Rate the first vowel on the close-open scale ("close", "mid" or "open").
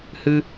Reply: close